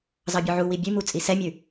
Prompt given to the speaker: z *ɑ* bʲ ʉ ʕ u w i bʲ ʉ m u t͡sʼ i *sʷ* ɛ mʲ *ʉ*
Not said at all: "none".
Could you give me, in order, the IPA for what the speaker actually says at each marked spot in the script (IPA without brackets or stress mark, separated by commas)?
ɑ, s, ʉ